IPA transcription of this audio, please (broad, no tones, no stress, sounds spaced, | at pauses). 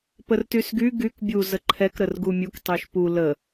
p ə r t y s ɡ y ɡ y k bʲ u z ə ǃʰ ɛ k ɾ ə r ɡ u mʲ u k tˤ y ʃ p u l ə